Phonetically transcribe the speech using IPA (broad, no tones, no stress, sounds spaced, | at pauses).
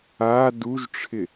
a d u ʒ ʈ͡ʂʰ ɪ